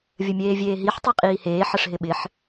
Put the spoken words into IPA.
vʲ ə mʲ eː vʲ eː ɦ i ħ tˤ e qʼ iː h eː ħ ə ʂ ɦ ɪ ɓ ɪ ħ

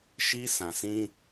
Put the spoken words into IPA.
ʃ i˦ sʰ ã˨ s ĩ˦

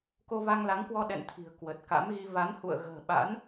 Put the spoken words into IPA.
k o˧ v a˧ ŋ l a˨˦ ŋ k w ɔ˧ ɗ ɛ̰˧˨ n t̪ʰ i̤˨˩ ə̯ k w ə˨˩ t̚ k a̰˧˥ m ɣ i˧ v a˨˦ n h ṵ˧˨ ə̯ ɣ ə̤ː˨˩ ɓ a̰˧˥ n

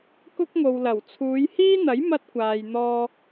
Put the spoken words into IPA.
k ʊ˥ k̚ ŋ o˨ w l ɐ˨˩ w t͡sʰ uː˨˧ j h iː˥ n̪ ɐ˨˥ j m ɐ˥ t̚ kʷ aː˨ j n̪ ɔː˧

